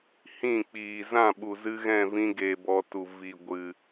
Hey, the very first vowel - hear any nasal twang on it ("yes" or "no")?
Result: yes